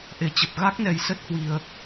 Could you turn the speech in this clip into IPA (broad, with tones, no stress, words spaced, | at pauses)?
ʔe˨˩t͡ɕə˨˩p̚ ɣa˦˥k̚nɛ˨˩j sə˦˥t̚hwi˨˩ə̯